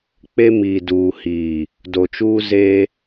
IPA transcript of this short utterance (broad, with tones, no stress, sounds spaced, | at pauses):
k͡p e˦ m iː˨ d uː˨ h iː˨ | d o˨ t͡ʃ uː˦ z eː˦